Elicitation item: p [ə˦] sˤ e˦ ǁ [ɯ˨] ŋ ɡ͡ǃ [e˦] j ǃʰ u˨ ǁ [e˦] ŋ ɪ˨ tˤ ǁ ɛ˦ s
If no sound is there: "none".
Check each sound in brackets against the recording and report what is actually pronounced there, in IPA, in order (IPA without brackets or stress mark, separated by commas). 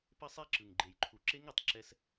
ə˦, ɯ˨, e˨, e˦